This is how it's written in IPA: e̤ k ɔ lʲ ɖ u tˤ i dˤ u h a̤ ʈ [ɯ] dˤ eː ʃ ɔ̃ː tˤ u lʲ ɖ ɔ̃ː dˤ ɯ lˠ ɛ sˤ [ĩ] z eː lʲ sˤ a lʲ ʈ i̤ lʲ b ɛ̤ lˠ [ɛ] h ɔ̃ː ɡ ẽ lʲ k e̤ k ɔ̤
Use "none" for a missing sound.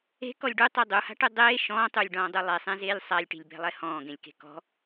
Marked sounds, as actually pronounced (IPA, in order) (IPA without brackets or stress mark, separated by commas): ɯ, ẽ, ɛ